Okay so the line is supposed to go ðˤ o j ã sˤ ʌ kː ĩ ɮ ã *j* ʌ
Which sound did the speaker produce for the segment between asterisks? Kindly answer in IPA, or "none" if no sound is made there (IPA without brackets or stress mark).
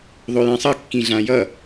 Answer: j